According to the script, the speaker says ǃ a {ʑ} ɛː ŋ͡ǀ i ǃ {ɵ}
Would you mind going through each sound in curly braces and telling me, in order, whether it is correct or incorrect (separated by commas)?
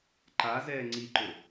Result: incorrect, correct